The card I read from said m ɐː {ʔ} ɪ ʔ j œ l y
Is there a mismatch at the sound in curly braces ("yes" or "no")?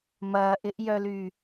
no